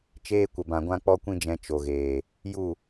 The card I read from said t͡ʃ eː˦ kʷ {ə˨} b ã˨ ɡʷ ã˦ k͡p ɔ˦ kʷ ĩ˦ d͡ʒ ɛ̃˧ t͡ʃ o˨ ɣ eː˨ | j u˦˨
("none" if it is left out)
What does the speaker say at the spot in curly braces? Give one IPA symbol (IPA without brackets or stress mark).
ə˨